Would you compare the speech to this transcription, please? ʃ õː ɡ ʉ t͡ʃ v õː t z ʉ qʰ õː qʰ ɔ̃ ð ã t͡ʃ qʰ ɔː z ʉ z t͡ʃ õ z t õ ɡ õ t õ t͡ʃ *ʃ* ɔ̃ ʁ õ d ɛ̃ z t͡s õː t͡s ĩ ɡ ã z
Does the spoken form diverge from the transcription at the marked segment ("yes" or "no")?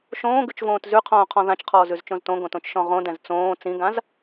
no